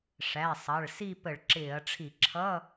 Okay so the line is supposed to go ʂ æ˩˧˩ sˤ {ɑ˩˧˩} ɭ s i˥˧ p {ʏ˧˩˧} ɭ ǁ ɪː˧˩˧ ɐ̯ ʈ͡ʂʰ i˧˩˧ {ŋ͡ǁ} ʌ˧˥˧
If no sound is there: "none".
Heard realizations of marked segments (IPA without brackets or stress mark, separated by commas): ɑ˩˧˩, ə˧˩˧, ǁʰ